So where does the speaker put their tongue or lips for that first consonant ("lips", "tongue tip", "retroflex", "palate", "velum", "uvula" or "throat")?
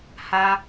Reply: throat